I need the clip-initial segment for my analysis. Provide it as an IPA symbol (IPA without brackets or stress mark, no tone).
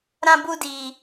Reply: ɾ